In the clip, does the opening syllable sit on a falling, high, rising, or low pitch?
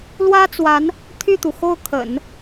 high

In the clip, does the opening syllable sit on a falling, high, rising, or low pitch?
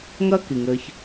high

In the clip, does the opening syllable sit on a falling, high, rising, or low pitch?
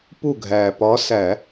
falling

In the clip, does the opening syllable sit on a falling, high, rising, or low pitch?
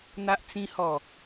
high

